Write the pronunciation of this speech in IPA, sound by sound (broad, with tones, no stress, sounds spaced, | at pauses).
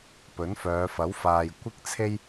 p ɵ˨˥ n f œː˨˧ f ɐ˨˥ w f aː˨ j kʷ ɪ˥ k̚ t͡sʰ e˥ j